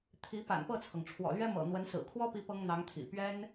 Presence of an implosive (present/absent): absent